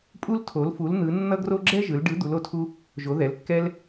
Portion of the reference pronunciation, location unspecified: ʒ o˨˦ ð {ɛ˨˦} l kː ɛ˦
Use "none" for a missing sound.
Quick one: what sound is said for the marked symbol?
ɛ˨˦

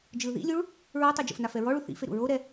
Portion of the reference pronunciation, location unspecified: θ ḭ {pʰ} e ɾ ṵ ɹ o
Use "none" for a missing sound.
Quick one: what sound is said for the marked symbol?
f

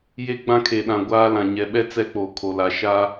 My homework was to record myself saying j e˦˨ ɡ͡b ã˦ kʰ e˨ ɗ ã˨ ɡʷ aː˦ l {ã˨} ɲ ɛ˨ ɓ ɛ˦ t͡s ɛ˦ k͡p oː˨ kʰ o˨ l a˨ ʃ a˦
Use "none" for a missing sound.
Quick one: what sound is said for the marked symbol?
ã˨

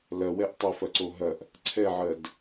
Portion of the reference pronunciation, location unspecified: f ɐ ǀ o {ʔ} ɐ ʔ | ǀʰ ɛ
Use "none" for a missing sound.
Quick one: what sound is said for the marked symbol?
ɦ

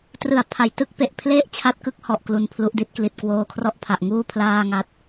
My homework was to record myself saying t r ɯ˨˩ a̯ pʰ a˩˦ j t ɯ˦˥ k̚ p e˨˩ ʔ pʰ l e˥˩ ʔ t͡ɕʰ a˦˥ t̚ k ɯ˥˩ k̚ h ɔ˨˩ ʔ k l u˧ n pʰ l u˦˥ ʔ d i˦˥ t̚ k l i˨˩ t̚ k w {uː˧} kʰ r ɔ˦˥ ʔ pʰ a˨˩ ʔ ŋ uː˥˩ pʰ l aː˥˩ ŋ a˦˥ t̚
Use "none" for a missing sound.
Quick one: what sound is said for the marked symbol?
oː˧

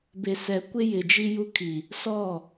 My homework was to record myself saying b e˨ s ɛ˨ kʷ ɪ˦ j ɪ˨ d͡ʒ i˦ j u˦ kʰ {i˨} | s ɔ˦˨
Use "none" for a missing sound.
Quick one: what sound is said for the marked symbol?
i˨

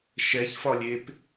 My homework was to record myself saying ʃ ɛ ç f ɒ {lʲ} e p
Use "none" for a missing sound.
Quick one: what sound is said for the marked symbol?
lʲ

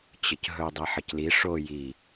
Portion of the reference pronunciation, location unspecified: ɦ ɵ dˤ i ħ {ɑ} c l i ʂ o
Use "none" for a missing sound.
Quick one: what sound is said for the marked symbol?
ə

